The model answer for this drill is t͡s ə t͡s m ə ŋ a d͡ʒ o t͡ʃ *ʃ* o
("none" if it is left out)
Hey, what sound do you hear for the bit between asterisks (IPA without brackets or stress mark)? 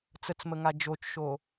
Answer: ʃ